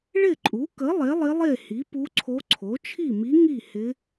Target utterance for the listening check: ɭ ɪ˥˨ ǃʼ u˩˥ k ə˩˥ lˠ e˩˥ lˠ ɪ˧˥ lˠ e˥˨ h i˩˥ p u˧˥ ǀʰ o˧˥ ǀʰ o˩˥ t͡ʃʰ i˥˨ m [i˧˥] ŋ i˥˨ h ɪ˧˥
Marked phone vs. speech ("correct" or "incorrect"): correct